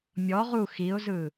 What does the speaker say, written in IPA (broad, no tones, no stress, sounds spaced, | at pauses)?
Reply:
mʲ ɔ ʁ u x i ʊ̯ z ɯ